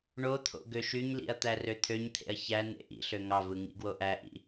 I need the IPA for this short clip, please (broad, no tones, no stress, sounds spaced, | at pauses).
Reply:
ɳ o t̪ʰ o̰ ɡ ø ʃ y ɲ l ḭ ɐ̯ t̪ æ r ø t̪ʰ ø ɲ t̪ʰ ḛ ɐ̯ ç æ n ḛ ʔ ḭ ɬ ø ŋ ɑ v ɯ ŋ ḭ ɡ w o ʔ æ ʔ ḭ